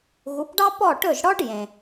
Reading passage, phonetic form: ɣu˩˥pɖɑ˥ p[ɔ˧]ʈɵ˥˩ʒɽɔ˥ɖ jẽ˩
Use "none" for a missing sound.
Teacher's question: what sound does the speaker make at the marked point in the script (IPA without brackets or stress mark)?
ɔ˥˩